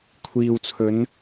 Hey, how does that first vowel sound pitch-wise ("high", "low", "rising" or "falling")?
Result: low